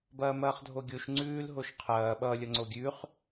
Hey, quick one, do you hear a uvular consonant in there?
yes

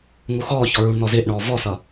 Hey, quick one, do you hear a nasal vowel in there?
no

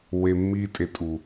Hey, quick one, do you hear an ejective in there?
yes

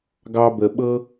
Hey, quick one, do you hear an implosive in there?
yes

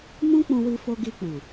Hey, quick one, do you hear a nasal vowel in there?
yes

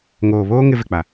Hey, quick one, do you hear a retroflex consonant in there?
no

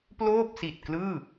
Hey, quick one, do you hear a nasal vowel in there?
no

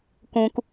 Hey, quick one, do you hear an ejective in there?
no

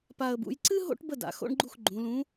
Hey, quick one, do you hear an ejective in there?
no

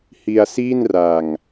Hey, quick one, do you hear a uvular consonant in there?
no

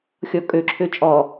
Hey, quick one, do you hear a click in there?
yes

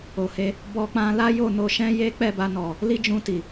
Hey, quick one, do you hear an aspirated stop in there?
no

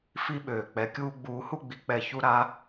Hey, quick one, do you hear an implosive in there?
yes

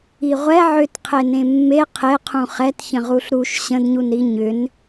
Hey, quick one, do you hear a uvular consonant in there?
yes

